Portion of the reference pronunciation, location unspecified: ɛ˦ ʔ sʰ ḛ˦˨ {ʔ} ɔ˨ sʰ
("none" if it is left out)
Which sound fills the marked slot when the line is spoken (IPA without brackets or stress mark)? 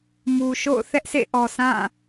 ʔ